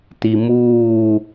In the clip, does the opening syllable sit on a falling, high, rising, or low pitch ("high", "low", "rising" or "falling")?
low